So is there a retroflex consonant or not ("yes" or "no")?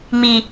no